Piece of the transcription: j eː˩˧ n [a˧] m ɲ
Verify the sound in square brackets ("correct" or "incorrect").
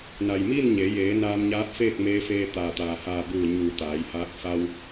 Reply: incorrect